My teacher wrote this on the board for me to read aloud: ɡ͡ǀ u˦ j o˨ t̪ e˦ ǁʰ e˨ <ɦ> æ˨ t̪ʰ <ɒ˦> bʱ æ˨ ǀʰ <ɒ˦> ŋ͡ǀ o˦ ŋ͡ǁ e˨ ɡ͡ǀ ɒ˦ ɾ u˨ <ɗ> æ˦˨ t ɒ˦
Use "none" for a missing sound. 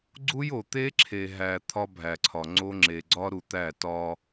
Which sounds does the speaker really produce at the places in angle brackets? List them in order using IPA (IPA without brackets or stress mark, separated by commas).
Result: ɦ, ɒ˦, ɒ˨, t̪